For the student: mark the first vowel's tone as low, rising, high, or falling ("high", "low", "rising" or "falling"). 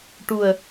low